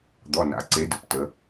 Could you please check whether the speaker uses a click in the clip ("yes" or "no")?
yes